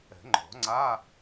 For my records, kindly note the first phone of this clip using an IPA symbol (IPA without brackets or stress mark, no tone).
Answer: ɛ̤